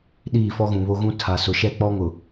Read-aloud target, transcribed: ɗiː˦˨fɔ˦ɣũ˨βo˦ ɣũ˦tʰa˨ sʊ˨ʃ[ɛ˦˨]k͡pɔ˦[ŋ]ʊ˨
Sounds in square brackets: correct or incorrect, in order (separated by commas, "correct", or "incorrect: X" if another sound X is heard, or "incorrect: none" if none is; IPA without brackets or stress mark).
correct, correct